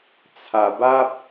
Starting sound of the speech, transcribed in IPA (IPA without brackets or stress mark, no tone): t͡sʰ